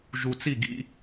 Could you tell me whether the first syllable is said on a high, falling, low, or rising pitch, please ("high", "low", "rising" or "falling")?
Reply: low